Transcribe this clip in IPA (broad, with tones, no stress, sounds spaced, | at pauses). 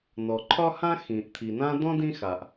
n ɔ˩ ǃʰ ɒ˥ h ã˥ x ĩ˩ ʔ t̪ʰ i˩ n ã˥ d ɔ̃˥ d ĩ˥ x a˩ ʔ